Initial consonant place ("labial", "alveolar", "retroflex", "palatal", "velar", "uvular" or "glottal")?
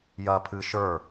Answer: palatal